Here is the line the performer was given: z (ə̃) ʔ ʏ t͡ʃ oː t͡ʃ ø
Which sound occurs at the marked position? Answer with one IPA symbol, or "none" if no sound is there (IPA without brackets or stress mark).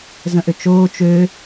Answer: ə̃